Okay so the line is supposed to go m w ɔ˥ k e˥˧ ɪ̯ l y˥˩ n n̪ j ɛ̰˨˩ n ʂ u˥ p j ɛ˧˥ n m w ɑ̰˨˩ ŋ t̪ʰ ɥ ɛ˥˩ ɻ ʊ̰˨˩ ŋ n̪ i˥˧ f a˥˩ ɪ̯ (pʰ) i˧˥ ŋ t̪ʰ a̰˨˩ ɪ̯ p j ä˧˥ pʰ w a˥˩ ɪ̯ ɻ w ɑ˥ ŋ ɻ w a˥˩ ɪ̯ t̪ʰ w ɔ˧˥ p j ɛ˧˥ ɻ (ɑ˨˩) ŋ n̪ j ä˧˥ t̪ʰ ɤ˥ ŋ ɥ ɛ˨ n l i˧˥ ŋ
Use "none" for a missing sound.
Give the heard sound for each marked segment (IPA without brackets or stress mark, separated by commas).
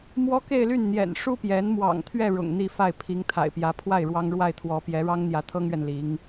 pʰ, ɑ˥